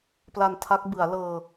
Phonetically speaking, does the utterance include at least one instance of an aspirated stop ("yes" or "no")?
yes